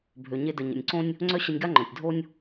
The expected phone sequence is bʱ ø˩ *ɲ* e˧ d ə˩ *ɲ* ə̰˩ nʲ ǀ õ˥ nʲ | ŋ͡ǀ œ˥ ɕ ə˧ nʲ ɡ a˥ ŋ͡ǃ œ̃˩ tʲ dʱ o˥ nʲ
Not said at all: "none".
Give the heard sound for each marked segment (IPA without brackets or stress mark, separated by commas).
ɲ, ɲ